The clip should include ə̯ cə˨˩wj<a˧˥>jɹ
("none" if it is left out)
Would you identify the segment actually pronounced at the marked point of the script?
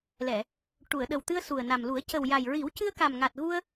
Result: a˨˩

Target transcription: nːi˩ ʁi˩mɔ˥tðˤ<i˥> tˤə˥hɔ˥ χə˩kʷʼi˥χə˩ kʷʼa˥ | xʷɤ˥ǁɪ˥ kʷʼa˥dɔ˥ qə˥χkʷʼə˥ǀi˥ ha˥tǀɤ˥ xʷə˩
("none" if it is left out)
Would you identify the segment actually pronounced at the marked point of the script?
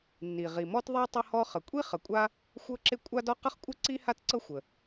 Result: i˥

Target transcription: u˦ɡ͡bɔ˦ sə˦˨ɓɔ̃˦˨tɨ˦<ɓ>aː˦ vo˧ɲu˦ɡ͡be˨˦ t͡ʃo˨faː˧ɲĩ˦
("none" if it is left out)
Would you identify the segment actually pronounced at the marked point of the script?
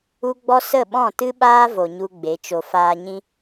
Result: ɓ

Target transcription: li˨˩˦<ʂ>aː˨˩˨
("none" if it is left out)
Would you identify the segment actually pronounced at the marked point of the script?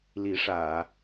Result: ʂ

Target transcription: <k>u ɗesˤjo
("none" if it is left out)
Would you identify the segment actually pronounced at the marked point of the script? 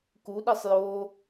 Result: k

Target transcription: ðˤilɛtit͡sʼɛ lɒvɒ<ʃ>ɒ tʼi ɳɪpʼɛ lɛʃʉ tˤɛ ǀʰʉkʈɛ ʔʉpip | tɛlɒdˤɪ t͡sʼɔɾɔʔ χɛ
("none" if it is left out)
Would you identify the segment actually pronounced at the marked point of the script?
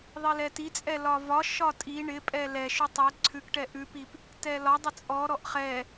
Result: ʃ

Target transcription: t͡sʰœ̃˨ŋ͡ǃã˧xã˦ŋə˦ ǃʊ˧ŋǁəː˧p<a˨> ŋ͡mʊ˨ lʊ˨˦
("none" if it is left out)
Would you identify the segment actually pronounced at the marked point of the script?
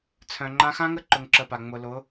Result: a˨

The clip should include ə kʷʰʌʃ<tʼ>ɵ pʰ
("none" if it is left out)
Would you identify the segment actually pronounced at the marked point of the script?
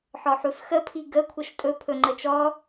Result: tʼ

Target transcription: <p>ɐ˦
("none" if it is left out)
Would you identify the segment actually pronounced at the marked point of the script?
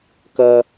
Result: k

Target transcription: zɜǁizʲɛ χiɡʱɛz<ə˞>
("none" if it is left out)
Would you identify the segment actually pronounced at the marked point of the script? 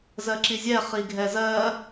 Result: ɜ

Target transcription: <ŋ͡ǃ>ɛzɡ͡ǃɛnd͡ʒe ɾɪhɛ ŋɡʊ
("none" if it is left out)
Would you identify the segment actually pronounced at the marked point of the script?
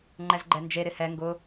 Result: ŋ͡ǃ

